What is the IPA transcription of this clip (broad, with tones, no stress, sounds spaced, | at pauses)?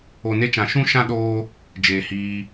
o˨ n e˧ t͡ʃ ã˨ ʃ ũ˦ ʃ ã˦ ɗ oː˦ | d͡ʒ eː˨ h iː˧